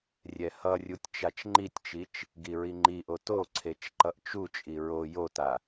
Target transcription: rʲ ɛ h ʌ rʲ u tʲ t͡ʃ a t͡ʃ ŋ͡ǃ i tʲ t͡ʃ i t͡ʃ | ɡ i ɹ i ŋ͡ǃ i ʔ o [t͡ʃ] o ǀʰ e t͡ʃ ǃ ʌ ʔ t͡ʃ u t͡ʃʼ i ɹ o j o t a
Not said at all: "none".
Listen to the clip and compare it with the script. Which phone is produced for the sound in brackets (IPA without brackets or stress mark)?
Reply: t